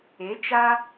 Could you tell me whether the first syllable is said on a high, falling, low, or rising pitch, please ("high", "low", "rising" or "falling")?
rising